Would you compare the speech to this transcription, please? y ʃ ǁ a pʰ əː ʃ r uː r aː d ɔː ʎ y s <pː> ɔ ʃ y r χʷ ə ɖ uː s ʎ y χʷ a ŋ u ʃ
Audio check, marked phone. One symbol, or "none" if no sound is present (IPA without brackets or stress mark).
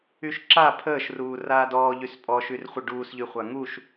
pʼ